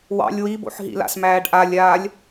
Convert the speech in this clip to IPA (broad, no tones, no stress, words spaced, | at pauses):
wɑ̰lʲ wibo̰ħɦḭla̰s mæːɖʔalʲaːlʲ